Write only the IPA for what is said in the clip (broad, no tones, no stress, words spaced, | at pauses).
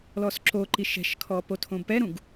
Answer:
lɔsǁoǃi ʃɛ̤ʃkʰɔ potʰõbpɛɾũɡ